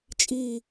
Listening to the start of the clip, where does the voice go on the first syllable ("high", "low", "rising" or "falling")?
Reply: low